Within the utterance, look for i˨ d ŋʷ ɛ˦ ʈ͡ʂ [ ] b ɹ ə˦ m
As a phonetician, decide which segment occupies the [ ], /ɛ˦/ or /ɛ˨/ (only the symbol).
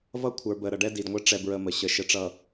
ɛ˦